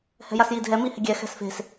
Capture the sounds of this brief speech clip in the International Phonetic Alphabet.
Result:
hɛ̤jasjidʱɛ mihɪɡʲɛ xɛ̤sfe̤s

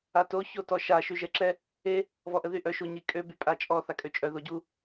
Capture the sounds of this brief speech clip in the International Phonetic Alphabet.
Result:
ato çotɔʃa ʃyʒɛǁɛ | e | vɔʔəðyʔœ ʃuɲikʼø bypʼat͡ʃʼɔ θakʼøt͡ʃʼœ ðoɟu

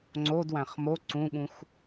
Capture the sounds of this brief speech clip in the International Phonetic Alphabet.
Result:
ŋ͡ǀodwæ̃χ mo ǀũɠũx

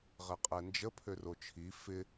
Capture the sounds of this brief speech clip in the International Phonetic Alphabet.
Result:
ʁɛqʼɛnd͡ʒə pʰørot͡ʃʰi fɪ

